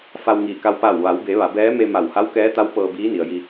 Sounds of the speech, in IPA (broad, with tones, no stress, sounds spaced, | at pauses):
f a˧ w ŋ iː˧˩ k a˧ w p a˧˩ w ʋ a˩˧ w b e˩˧ ʋ a˩˧ b ɛː˧˥ m e˧ m a˧˩ w h a˧˥ w k ɛː˧˥ t̪ a˧˥ w p ɤː˧ b iː˧˥ n i˩ ə̯ j i˧